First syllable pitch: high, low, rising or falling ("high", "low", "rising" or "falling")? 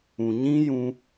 low